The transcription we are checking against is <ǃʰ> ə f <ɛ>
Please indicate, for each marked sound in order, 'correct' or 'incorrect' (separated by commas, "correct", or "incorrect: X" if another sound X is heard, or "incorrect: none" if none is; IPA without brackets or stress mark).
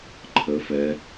correct, correct